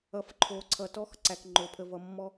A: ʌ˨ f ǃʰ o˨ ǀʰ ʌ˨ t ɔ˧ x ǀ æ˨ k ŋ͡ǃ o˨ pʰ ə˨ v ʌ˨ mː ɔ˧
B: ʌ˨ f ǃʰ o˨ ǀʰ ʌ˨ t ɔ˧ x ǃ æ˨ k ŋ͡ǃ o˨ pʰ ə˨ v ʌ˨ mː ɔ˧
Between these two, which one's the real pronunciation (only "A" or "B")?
A